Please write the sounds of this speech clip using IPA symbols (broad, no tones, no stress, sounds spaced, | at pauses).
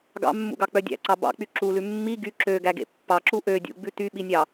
ɡ ɑ̰ mː ṵ ɡ ɑ k͡p œ dʲ æ̰ ǀ ɑ b ɑ̰ k͡p y ǁ u l ʉ mː i ɡ y ǁ ø ɡ æ ɡ ḛ pː ɑ ǁ u ʔ ø dʲ ṵ ɡ͡b ʉ t y ɓ i nʲ ɑ